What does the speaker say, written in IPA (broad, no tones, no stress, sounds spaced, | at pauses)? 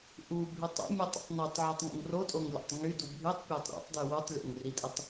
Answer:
ʔ u bʱ y tˤ o̰ mʲ u tˤ ṵ tˤ n u tˤ ʕ o tˤ ŋ ṵ ŋ r o tʼ o ŋ lʲ o̰ tˤ ŋ y d u bʱ y tˤ pʲ o tˤ ɾ o̰ tˤ d y w u tˤ lʲ o̰ ŋ r i tʼ i tˤ